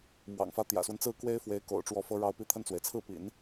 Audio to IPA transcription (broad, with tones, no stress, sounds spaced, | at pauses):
m w ɑ̰˨˩ ŋ f ä˧˥ t̪ j ä̰˨˩ s w ə˦ n t͡s ɹ̩˥˩ k w e˥ ɪ̯ f w e˧˥ ɪ̯ k o̰˨˩ ʊ̯ ʈ͡ʂ w ɔ˧˥ f ɤ˧˥ ɻ ɑ˧˥ ʊ̯ p i˧˥ t̪ʰ ə˥˩ n t͡s w e˩ ɪ̯ t͡sʰ ɹ̩˥˩ p ḭ˨˩˦ n